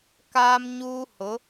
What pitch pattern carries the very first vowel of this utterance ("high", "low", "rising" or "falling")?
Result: high